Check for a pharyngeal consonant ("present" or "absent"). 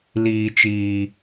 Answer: absent